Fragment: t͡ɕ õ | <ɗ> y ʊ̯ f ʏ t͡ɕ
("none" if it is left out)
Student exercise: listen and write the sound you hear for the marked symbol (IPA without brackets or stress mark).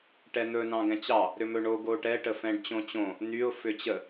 n̪